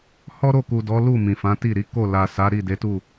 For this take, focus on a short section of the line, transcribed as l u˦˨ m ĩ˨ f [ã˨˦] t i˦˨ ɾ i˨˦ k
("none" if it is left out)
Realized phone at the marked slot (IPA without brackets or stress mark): ã˨˦